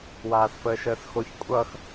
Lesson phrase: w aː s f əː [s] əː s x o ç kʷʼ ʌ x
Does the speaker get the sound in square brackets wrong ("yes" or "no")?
yes